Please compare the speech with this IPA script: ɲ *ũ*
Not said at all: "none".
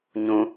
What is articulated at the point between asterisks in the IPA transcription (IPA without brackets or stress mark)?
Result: ũ